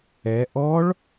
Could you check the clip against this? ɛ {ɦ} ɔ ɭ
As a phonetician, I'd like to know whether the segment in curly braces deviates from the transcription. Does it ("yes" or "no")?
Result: yes